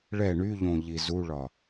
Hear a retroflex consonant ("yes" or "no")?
yes